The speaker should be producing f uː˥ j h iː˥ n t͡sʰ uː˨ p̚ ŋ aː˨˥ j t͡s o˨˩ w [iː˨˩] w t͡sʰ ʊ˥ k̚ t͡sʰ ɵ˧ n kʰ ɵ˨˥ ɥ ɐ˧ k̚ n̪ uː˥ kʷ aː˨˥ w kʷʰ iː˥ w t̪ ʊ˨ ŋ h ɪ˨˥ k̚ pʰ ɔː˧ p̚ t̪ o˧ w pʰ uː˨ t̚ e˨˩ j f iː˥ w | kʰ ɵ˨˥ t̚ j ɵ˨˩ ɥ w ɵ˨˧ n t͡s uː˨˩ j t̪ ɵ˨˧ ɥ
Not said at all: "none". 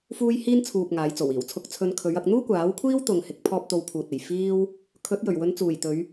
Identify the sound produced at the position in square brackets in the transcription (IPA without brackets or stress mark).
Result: iː˨˩